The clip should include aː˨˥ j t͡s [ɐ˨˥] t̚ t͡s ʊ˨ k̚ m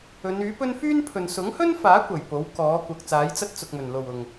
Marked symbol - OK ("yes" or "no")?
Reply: no